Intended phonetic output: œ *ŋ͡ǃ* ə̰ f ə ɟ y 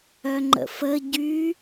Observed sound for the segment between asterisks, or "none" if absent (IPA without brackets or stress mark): ŋ͡ǃ